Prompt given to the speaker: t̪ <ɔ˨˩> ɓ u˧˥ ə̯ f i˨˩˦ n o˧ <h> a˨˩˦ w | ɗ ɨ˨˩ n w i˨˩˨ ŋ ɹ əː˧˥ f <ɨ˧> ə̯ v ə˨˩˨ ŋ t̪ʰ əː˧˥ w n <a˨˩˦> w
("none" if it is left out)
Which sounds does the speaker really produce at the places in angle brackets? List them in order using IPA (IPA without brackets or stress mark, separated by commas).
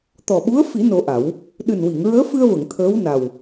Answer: ɔ˨˩, ʔ, ɨ˧, a˨˩